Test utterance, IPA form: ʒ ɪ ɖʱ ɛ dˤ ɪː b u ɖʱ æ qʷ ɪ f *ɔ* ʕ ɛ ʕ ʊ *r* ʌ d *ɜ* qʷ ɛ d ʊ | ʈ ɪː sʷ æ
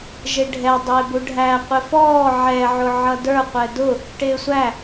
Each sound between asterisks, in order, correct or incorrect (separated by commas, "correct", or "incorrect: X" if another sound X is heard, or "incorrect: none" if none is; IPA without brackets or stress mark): incorrect: ɔː, incorrect: ʕ, incorrect: ə˞